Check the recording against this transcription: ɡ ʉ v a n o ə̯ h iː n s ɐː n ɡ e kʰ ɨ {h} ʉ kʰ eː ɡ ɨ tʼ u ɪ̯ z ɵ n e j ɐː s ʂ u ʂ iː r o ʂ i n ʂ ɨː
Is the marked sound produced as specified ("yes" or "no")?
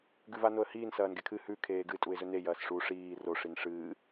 yes